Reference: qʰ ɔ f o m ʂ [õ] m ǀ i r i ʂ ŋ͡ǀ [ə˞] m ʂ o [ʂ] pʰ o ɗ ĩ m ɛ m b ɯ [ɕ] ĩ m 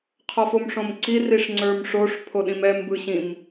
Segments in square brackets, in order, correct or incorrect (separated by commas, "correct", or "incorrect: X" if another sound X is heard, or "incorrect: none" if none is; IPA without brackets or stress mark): correct, correct, correct, correct